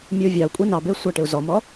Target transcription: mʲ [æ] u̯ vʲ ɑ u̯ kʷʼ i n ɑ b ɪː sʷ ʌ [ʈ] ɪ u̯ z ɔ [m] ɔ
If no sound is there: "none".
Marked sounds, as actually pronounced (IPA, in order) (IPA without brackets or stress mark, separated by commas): ə, ʈ, m